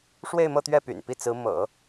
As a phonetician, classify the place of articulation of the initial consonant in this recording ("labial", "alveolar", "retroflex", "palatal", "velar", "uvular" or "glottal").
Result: retroflex